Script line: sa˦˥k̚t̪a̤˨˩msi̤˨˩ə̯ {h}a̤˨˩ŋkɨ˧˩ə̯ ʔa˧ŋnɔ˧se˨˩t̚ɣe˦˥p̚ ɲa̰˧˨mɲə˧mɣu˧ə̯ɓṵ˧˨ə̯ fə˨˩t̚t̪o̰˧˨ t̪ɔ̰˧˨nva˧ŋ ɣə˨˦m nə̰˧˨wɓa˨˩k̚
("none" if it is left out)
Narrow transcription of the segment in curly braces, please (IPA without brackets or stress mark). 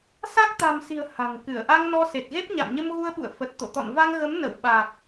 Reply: h